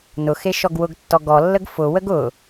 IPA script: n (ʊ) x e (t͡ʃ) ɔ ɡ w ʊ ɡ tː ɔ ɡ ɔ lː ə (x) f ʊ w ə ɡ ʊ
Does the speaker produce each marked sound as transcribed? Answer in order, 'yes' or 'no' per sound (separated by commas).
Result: yes, no, no